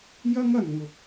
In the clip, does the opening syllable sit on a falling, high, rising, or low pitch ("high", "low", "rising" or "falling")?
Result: high